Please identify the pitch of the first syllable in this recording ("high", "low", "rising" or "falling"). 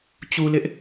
low